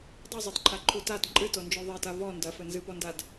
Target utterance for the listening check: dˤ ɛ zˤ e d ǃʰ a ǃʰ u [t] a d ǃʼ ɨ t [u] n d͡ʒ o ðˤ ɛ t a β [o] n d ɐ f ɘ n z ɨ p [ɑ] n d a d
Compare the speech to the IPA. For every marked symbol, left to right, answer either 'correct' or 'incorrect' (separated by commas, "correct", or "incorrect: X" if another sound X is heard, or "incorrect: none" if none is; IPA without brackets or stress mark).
correct, incorrect: o, incorrect: ɔ, incorrect: ɔ